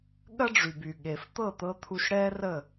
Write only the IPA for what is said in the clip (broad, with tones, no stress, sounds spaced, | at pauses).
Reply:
ɠ ɐ˦ ɖ͡ʐ y˨ b y˨ ɠ e˨ f t̪ ɤ˦˨ t̪ ɤ˧ t̪ʰ u˧ ʃ ɽ ɛ˦ r ə˦˨